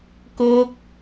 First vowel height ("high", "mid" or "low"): mid